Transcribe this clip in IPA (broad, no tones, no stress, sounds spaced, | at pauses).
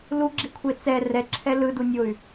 l u ɡ͡ǁ i kʷʰ e t͡s ɛ r ɛ ǁʰ ɛ l ɯ d u nʲ o y̯